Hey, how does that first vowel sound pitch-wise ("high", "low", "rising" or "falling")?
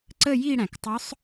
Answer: falling